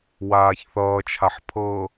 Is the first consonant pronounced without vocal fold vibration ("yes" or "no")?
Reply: no